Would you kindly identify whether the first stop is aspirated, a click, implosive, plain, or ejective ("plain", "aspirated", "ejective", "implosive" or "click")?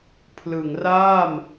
aspirated